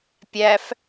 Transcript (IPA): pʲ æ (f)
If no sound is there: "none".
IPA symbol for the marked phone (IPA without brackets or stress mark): f